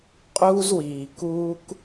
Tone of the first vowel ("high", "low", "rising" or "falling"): high